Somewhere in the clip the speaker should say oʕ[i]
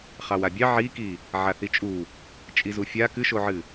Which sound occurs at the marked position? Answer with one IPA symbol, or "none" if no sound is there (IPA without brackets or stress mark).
ɨ